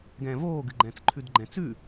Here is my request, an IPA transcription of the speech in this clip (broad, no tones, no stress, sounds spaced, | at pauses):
ɡ ɛ̃ː v oː ɡ ɨ ɡ͡ǃ ɛ̃ː t͡s ǃʰ ʉ d ɡ͡ǃ ɛ̃ t͡s ʉ